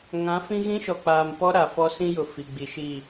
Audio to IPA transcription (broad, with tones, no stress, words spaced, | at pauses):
ŋã˨˦fĩ˦ ɣĩ˦ʃɔ˨k͡paː˨mpɔ˦ ɾa˨fɔ˦ sĩ˦jʊ˨ fi˨ɡ͡bi˨ʃi˦˨